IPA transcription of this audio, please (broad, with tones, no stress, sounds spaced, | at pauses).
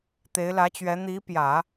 t̪ e˧˥ ɪ̯ l ä˧˥ t͡ɕ ɥ ɛ˧˥ n̪ i˧˥ p j ä˨˩˦